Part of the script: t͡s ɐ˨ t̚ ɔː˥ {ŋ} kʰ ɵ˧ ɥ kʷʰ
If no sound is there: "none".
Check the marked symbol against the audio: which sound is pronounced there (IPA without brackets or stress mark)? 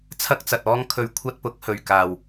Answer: ŋ